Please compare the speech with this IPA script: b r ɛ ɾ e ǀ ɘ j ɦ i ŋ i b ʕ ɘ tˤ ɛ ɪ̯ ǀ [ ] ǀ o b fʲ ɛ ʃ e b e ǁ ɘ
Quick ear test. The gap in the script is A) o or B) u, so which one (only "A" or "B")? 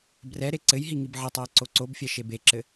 A